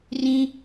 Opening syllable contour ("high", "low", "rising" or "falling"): high